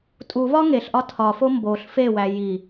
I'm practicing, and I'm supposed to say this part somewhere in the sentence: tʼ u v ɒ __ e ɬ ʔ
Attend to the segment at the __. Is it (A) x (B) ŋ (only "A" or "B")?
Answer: B